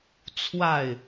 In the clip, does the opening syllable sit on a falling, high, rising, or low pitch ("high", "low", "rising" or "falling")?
falling